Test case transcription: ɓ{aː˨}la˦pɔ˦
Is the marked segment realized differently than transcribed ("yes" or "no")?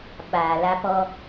no